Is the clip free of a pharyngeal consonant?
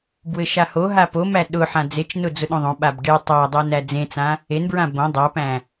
no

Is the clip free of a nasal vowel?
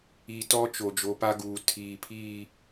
yes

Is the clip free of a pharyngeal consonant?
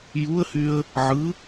no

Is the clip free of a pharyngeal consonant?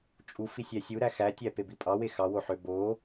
no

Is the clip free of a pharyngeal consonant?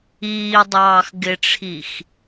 yes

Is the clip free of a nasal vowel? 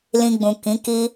no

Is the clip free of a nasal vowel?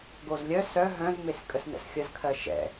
no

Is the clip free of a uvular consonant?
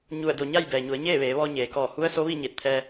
yes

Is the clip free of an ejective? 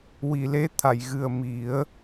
yes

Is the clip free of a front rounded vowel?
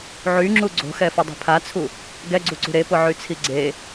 no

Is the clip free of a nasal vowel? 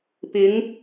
yes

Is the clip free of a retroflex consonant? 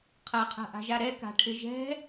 no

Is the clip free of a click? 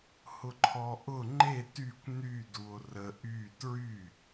no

